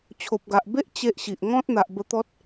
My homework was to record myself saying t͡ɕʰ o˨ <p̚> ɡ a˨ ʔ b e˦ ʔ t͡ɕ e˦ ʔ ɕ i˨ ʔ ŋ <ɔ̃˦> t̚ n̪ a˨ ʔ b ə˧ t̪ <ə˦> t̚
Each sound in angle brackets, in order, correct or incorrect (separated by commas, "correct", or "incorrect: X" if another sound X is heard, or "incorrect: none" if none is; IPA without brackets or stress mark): correct, correct, incorrect: ɔ˦